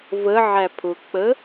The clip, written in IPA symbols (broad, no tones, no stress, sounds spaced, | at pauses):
v ə ʕ æ pʰ ʊ k͡p ə